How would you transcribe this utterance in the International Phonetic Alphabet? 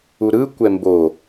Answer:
u ɾ ɯ kʷ ɛ m b o

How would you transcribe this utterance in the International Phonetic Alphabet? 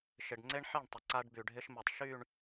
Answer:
ʃ ɪ˨ ɖ ŋ͡ǀ e˦ ɳ ħ e˦˨ ɳ tˤ ɪ˨ ǀ a˦ ɖ b y˨ ɖʱ ɪ˦ ʃ m ɪ˨ tˤ ʃ y˦˨ ɳ

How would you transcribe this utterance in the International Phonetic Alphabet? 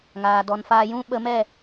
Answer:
ŋ aː˨ d ɔ˨ n f aː˧ j ũ˦ ɓ ə˧ m ɛ˦˨

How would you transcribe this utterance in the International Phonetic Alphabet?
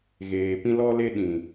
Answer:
ɣ eː˨ p ĩ˦ l ɔ˦ l e˦ ɗ ĩ˨

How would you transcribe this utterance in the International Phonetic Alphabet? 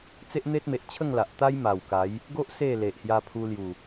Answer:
t͡s e˦ ʔ n̪ e˦ t̚ m e˨ ʔ t͡ɕʰ ə˥˧ ŋ l a˨ ʔ t̪ a˦ j m a˨˩ w k a˨˦ j | ɡ o˦ ʔ s e˥˧ l e˨ ʔ h j a˧ pʰ u˧ l j u˨˩

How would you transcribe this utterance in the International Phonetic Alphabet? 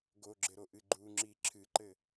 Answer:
ɡ o ɡ͡ǁ ɘ ɾ o ʔ ɨ ɡ͡ǃ u ŋ͡ǁ i ǁʰ ɨ ǃ ɘ

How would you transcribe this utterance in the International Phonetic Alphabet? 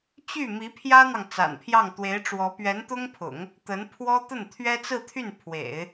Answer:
t͡ɕ y˥˩ m i˧˥ pʰ j ä˥ n̪ ɑ˨ ŋ t͡s a̰˨˩ n pʰ j ɑ˥˩ ŋ t̪ w e˧˥ ɪ̯ ʈ͡ʂ w ɔ˧˥ p ɥ ɛ˧˥ n t̪ ʊ˥ ŋ pʰ ʊ̰˨˩˦ ŋ | t̪ ə˧˥ n pʰ w ɔ˥ t̪ ə˥˩ n t̪ʰ ɥ ɛ˥ t͡s ɹ̩˥˧ t̪ʰ y˥˩ n pʰ w ḛ˨˩˦ ɪ̯

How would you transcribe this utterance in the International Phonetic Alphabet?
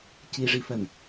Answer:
c i ʐ i f ɜ n

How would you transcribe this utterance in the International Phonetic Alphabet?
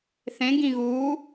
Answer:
θ ẽ ɡ ĩ ɣ uː

